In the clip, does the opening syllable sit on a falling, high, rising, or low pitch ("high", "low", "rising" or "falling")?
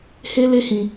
high